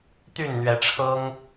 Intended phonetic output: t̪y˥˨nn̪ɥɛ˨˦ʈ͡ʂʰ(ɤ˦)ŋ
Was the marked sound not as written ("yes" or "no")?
no